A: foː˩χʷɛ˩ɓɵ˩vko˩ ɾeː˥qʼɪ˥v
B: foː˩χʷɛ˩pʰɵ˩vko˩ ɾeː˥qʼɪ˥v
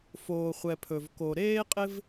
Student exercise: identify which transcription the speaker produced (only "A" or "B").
B